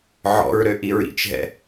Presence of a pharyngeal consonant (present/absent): present